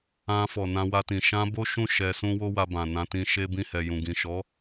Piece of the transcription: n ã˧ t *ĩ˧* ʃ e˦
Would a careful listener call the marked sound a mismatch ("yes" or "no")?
no